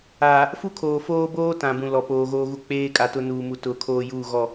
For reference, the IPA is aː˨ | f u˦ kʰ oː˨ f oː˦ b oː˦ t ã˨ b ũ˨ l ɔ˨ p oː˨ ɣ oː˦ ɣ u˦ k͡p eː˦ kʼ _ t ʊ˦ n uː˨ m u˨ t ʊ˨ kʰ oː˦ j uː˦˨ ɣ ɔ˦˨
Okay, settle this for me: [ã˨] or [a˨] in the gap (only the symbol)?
a˨